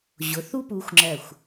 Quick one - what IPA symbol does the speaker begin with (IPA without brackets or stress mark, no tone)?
ʑ